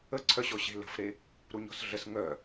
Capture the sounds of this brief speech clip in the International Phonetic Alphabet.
ə ǀʰ œ ɕ ɔ ɕ e̤ l ə̤ f ɾ e | ɾ u ɲ ɔ̤ s ɮ ə s ŋ œ

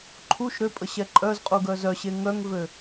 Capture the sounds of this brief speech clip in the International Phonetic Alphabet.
ǃʰ u ʃ ɾ ø pʼ ə ɕ ɛ ǃʼ œ z qʼ u ɡ œ z œ ɕ e ŋ œ ŋ v ø

